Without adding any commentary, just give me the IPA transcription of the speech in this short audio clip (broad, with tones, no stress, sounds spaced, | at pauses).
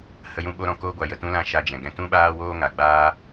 h ə˧ j ũ˧ ɓ o˦ ɾ ɔ̃˧ k oː˦ ɡʷ a˧ j ə˨ t ũ˦ l ã˦ ʃ a˧ d͡ʒ ɛ̃˨ ɡ ɛ̃˧ t ũ˦ ɓ aː˦ w oː˦ ŋ a˨ ɡ͡b aː˦